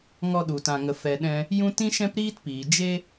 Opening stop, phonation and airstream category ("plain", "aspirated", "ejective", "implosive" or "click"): implosive